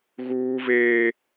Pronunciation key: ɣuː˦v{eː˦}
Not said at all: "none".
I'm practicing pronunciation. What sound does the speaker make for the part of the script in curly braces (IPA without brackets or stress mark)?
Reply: eː˦